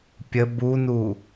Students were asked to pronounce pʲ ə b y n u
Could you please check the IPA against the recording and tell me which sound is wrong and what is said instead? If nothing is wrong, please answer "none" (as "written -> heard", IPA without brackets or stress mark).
y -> u